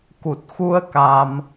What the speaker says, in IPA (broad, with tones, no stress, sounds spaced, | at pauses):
k u˨˩ t̚ x u˧ ə̯ k a˧ m